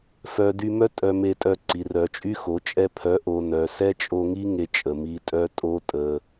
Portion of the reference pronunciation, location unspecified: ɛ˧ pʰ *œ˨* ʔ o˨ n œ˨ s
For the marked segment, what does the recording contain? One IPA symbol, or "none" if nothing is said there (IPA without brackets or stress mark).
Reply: œ˨˦